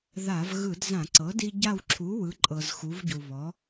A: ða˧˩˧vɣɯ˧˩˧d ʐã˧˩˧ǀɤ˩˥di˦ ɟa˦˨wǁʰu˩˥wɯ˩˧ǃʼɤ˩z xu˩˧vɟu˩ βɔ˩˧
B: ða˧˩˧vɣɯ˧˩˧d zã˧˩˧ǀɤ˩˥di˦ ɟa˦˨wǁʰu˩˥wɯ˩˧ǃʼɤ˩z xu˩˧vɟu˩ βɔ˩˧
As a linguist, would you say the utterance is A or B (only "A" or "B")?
B